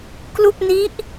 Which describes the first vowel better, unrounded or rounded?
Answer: rounded